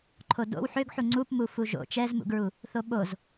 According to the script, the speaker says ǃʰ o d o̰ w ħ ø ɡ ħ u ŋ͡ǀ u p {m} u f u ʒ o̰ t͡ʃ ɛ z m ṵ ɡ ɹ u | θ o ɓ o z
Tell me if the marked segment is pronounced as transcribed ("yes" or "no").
yes